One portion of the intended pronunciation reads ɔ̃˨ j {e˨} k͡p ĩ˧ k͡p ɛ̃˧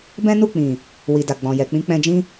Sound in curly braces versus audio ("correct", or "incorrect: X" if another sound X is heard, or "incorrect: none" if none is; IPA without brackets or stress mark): incorrect: ɛ˨